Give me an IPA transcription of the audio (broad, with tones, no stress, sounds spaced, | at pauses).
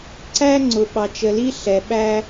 ǀ æ˦ ŋ͡ǀ ʊ˨ ɓ ɑ˨ t͡ʃ ə˨ l i˦ ɬ ɛ˨ ɓ æ˦